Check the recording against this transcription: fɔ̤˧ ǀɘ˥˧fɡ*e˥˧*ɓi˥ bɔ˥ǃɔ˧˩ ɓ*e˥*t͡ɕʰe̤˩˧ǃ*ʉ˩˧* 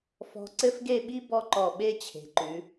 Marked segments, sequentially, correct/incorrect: correct, correct, correct

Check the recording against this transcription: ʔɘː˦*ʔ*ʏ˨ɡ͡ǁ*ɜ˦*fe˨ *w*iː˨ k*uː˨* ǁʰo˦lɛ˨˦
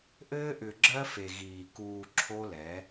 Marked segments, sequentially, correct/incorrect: correct, correct, incorrect, correct

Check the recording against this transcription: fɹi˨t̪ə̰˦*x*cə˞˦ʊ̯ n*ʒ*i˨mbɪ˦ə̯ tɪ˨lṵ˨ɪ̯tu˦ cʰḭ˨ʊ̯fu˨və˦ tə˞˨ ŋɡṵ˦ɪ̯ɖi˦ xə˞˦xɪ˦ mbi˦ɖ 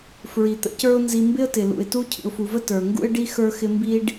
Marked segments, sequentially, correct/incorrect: incorrect, incorrect

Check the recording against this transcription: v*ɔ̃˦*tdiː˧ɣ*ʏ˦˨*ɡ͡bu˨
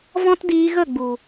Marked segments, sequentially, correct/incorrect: correct, incorrect

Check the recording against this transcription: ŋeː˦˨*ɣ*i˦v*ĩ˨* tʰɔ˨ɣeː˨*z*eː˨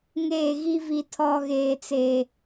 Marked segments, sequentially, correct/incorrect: correct, incorrect, incorrect

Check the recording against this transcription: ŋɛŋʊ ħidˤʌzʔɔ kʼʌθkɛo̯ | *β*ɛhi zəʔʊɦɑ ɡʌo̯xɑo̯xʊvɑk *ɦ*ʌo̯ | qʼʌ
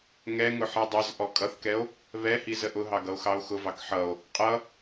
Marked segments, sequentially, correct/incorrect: correct, incorrect

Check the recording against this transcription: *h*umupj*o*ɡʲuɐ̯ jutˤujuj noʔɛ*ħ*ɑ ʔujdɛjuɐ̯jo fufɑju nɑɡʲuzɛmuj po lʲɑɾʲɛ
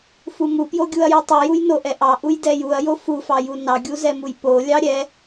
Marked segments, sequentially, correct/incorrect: incorrect, correct, incorrect

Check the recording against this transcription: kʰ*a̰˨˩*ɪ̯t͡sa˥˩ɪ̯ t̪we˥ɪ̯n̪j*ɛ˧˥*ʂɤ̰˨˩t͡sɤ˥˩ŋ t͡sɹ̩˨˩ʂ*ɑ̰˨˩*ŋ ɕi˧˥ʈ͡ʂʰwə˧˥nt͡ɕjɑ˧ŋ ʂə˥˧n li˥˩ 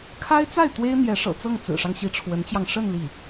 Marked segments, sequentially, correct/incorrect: incorrect, correct, incorrect

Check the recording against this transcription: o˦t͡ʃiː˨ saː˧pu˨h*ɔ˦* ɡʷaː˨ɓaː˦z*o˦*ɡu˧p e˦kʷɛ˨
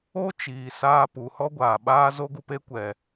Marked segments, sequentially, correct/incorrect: correct, correct

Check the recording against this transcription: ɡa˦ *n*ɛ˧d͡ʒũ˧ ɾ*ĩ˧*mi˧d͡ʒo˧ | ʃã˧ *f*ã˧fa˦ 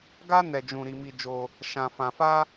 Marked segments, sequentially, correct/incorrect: correct, incorrect, correct

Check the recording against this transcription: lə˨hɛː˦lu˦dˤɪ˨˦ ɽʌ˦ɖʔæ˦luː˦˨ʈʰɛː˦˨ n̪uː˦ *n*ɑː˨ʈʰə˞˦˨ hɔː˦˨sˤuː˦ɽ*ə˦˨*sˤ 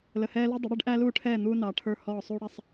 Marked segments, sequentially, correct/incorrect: correct, incorrect

